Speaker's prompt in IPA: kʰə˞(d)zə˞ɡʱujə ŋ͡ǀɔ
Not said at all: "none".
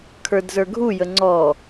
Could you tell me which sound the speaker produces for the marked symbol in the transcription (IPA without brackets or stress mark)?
d